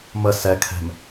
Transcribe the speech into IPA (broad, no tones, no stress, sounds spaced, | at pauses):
m ə s ɛ kʰ ɛ̤ m